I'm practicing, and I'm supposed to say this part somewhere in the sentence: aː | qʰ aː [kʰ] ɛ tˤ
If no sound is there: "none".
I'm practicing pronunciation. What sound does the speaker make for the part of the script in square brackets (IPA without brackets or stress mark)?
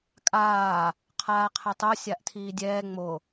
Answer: qʰ